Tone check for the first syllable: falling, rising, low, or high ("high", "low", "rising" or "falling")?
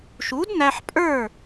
rising